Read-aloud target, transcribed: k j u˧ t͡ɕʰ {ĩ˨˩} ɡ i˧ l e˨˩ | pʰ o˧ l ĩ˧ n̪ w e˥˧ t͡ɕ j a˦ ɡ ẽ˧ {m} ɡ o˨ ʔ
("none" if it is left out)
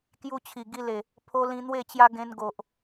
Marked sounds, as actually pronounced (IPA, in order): i˨˩, n

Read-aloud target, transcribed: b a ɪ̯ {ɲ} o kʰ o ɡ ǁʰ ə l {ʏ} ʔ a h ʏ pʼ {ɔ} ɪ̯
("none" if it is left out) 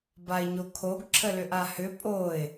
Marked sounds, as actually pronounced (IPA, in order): ɲ, ʏ, o

